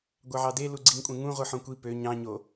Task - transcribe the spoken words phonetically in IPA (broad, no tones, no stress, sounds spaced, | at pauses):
ɡʷ ɑ ʕ ɑ d e l u ɡ͡ǀ i ŋ kʷʼ ẽ ŋ ũ ʁʷ ɯ ħ õ kʷ i p ø ɲ ɑ̃ ɲ o